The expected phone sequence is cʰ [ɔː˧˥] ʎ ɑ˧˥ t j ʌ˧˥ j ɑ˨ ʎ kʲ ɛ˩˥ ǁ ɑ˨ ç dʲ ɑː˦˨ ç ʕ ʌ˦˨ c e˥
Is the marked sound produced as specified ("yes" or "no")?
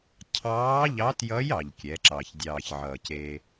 no